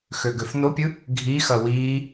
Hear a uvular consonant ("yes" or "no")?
no